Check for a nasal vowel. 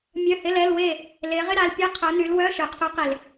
absent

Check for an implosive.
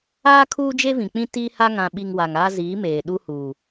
present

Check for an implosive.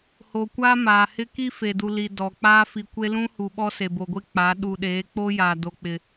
present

